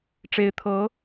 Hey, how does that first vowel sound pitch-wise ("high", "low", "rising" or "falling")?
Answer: rising